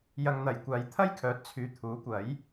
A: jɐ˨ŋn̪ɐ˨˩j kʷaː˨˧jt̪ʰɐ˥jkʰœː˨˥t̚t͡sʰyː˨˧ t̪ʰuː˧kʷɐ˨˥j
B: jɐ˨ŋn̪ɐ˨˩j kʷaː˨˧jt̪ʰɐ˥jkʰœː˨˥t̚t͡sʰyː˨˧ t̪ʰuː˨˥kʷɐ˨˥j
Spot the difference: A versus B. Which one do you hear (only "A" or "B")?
B